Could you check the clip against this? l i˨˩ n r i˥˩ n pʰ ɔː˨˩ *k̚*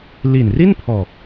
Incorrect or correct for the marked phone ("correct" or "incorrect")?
correct